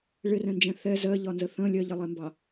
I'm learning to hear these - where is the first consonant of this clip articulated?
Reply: retroflex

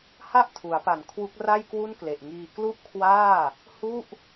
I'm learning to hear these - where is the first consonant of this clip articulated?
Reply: throat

